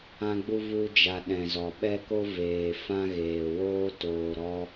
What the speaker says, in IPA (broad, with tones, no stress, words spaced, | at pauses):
ã˧ɡ͡bu˧ vu˧d͡ʒa˨ ɗɛ̃˨zɔ˨ɓɛ˦ko˦ veː˨fã˦ ɣeː˨woː˦ toː˨ɾɔ˧